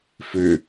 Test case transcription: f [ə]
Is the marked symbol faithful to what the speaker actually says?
no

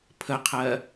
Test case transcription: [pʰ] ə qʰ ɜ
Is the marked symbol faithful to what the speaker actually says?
yes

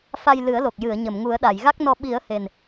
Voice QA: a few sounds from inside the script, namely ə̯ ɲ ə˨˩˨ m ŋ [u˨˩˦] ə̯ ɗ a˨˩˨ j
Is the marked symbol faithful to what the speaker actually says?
yes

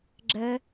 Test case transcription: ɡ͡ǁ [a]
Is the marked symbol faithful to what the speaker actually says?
no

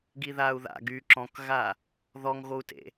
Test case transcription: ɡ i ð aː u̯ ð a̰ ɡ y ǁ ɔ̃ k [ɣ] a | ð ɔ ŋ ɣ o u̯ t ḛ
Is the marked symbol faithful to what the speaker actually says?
yes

